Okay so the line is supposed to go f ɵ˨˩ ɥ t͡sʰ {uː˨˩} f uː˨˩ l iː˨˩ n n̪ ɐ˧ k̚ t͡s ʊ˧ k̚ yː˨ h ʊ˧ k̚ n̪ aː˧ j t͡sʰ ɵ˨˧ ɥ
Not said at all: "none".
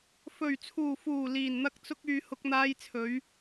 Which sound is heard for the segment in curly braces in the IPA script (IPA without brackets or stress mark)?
uː˨˩